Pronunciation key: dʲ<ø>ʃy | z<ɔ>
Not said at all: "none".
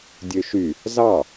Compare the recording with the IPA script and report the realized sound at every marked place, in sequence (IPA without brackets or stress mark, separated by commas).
ø, ɑ